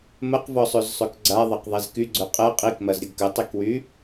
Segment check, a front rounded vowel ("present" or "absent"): present